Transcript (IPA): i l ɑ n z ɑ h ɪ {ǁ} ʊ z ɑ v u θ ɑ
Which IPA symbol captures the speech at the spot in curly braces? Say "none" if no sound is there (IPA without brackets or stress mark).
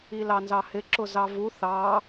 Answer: ǁ